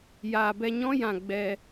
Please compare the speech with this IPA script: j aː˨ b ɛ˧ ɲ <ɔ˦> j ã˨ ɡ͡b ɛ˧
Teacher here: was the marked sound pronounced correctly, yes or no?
no